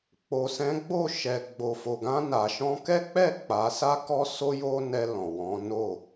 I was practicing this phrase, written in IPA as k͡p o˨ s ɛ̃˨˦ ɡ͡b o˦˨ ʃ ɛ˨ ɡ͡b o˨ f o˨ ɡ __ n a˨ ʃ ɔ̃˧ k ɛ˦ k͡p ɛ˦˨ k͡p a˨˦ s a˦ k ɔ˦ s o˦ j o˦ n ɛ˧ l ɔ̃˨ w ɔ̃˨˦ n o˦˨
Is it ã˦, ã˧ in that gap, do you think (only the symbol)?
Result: ã˧